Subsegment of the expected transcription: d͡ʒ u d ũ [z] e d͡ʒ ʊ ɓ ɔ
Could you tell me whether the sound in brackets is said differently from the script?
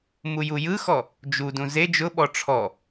no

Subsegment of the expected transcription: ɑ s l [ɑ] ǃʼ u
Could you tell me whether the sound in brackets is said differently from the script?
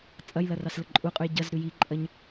yes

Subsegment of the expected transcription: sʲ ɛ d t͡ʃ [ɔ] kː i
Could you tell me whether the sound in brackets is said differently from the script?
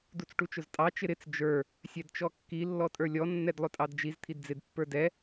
no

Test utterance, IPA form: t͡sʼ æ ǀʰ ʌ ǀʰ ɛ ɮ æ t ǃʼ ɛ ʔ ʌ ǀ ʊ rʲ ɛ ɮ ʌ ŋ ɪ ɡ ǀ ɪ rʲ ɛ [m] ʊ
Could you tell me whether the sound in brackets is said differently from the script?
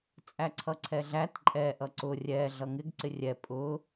yes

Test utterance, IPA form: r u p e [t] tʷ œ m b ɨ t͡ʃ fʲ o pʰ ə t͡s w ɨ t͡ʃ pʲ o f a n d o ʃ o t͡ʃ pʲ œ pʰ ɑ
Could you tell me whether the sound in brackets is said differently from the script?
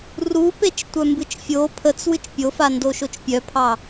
yes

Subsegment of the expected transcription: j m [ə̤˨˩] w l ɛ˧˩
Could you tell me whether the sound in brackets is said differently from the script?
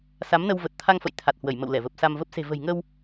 yes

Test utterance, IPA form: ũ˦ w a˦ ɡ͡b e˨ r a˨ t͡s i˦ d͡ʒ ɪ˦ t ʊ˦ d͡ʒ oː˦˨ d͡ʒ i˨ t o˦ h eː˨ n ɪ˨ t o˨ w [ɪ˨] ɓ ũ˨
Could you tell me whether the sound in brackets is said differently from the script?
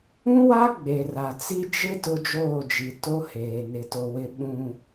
no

